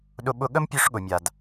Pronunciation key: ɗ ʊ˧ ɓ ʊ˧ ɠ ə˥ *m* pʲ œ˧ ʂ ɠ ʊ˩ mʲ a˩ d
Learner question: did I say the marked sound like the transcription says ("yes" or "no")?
yes